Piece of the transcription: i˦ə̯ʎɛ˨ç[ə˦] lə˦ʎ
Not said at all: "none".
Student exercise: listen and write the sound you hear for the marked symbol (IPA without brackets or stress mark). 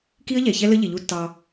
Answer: ɛ˦